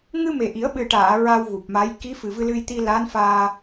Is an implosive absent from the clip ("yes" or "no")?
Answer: no